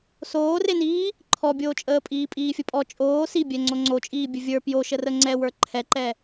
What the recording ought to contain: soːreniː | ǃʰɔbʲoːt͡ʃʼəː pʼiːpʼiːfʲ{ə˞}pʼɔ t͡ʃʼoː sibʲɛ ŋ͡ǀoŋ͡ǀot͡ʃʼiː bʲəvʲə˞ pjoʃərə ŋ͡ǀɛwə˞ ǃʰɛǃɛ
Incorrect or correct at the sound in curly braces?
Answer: incorrect: ə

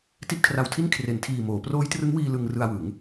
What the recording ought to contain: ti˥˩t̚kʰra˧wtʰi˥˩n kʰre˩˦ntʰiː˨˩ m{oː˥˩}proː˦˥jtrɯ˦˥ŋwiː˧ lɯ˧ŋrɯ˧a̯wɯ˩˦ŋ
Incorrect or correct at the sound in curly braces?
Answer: incorrect: oː˩˦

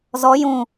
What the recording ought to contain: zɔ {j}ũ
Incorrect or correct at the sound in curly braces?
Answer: correct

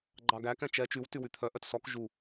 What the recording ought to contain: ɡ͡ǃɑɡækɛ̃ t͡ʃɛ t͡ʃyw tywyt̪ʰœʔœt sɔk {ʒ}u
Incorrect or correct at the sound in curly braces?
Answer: correct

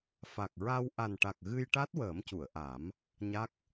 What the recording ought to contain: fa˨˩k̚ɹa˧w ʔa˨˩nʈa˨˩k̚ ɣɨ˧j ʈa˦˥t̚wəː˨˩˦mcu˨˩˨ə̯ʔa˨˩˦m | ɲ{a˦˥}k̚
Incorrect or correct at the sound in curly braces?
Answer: correct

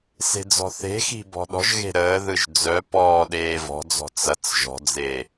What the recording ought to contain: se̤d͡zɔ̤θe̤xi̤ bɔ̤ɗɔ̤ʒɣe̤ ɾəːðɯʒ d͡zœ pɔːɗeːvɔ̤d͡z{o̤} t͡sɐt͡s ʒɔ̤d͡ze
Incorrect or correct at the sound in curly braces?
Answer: incorrect: ɔ̤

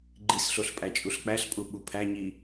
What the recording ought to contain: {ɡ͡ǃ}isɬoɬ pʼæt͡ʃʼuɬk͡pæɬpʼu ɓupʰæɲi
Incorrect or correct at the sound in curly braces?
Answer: correct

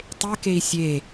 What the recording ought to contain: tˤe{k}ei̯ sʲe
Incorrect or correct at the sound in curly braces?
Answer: correct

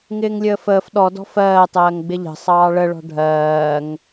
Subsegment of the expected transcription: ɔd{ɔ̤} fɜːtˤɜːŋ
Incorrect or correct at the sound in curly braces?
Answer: correct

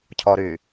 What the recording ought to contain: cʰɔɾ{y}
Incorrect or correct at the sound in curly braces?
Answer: correct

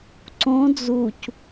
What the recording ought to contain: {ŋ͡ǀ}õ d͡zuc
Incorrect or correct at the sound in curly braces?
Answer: incorrect: ǀ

